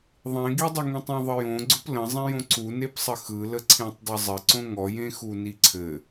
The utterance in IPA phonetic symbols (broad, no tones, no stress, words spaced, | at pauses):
ðˤẽɡidˤɘ ŋĩtˤĩðˤəjõ ɡ͡ǀʊplə̃zˤẽjõ ǀunepsˤə xɯlə ǀʰẽtˤdˤəzˤɘǀõ ŋɔjẽxu niǀʰɘ